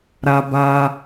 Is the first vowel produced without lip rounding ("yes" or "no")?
yes